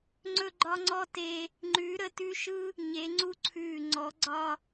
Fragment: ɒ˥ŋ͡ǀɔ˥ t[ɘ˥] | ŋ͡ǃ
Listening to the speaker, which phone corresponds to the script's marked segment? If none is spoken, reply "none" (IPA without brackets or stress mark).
e˥